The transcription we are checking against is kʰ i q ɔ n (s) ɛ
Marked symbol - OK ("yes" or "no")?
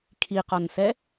yes